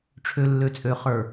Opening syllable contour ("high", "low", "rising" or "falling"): low